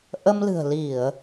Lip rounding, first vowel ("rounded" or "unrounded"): unrounded